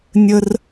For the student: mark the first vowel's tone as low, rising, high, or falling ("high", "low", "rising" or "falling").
high